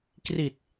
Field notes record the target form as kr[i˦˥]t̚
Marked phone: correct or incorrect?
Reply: incorrect